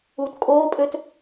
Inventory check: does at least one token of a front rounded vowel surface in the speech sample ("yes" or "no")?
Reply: yes